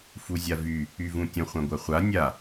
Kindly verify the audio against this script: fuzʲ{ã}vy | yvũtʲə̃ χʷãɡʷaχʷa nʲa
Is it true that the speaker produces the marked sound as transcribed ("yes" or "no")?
no